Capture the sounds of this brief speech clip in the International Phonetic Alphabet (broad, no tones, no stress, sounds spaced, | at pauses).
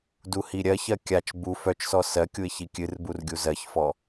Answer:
d u h i ɾʲ ɜ ç ɜ kʲ a t͡ʃ b u f œ t͡ʃ s ɔ s ɜ kʲ u ɪ̯ ç i kʲ ɨ r b u r ɡʲ u z ɜ ç f ɔ